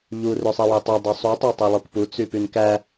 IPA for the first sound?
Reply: ʎ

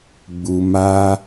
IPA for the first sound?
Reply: ɡ͡b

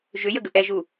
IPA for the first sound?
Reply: ʒ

